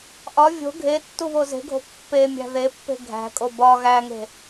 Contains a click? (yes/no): no